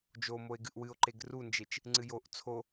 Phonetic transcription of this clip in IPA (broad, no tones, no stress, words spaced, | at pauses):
d͡ʒomoe̯ ɡɨʔwɨo̯ǃeɡ rund͡ʒet͡ʃ | ŋ͡ǀɨjoʔ t͡sʰo